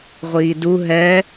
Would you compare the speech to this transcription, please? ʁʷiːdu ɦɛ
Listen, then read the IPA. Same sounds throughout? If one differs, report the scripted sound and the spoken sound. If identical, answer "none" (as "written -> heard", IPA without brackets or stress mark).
none